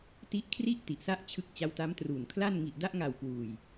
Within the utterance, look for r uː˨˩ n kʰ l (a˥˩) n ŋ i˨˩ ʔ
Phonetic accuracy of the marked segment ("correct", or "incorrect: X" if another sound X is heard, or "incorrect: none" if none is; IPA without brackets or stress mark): correct